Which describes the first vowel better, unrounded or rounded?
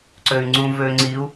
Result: rounded